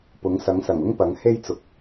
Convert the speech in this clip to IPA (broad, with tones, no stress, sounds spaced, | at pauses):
p ʊ˨˥ ŋ s ɐ˨˥ ŋ s ɐ˨˩ ŋ ʊ˥ ŋ p ɐ˨˥ ŋ h e˥ j t͡s ʊ˨˥ k̚